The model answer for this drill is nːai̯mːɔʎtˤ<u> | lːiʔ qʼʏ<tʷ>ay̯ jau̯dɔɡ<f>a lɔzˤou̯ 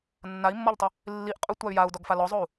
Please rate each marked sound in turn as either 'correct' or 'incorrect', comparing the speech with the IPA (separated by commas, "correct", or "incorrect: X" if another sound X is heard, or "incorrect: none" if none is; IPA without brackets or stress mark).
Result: incorrect: ʏ, correct, correct